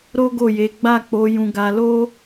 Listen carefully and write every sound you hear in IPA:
ɾo˦ɡo˦˨je˨˦ ɡ͡ba˦˨k͡po˨˦ jũ˧ɡa˧lo˦

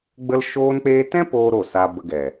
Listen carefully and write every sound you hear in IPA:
ɡ͡bə˦l ʃoː˧nk͡peː˧tɛ̃˦ poː˦ɾo˦˨saː˧ bə˧ɡɛ˨

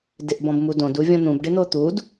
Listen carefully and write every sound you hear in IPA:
dɪʔbɔ̃bmudõd uvʲɔ̃n̪ũb ɖɪn̪ot̪ud

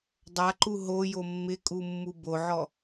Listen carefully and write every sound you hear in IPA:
dˤaǃu ɦojo mːɪkʼumːu boʕɔ

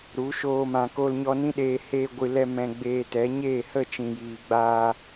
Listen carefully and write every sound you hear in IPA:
ɾu˨˦ ʃoː˧mã˨ ko˧lɲɔ˧ nĩ˦ɗeː˧ heː˧ɡʷɨ˨lɛ˧ mɛ̃˧ɡ͡beː˧tɛ˨˦ ɲeː˦˨hə˦˨t͡ʃĩ˨jiː˨ ɡ͡baː˧

